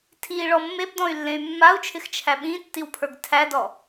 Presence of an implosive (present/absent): present